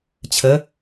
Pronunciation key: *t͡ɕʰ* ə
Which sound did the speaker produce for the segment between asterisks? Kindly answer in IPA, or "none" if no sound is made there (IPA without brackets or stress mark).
t͡ɕʰ